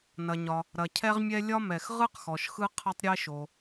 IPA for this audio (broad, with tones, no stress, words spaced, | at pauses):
nɐ˩ɲɒ˩ | ɾɐ˩cʰɛ˥ʁmʲɛ˥ lʲɒ˥mɛ˩x ʁɯ˥qxɔ˩ʃ xɯ˥ qʰɐ˥tˤɾʲe˥ʃo˩